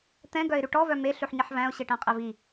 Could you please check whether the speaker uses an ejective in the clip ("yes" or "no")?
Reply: yes